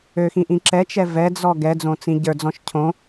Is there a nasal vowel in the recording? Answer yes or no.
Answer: yes